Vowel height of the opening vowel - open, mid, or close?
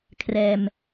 mid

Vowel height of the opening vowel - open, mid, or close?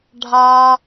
open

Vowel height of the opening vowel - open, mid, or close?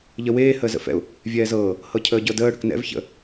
mid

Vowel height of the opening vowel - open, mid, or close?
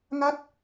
open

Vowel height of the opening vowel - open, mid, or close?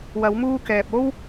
open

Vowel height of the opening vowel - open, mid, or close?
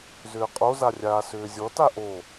close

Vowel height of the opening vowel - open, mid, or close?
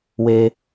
mid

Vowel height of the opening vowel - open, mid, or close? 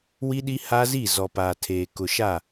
close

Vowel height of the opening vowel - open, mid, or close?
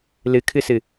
close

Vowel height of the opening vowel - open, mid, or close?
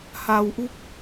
open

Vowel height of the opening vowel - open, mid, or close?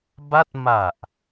open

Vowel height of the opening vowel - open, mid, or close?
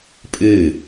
close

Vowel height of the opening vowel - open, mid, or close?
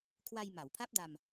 open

